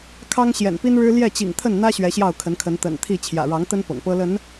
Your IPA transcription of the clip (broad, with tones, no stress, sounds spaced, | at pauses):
kʰ ɑ˦ ŋ ɕ j ɛ̰˨˩ n p i˦ n ɻ ɻ̩˦ l j ɛ˥˨ t͡ɕ ḭ˨˩ ŋ t̪ʰ ə˥˨ n n̪ ä˦ ɕ ɥ ɛ˨˦ ɕ j ɑ˥˨ ʊ̯ kʰ ə˨˦ n kʰ ə˨˦ n t̪ ə̰˨˩ n t̪ʰ i˥˨ t͡ɕʰ j ä̰˨˩ ɻ ɑ˨˦ ŋ t̪ ə˦ n p ɤ̰˨˩ ŋ p ɤ˦ l ə˨˦ n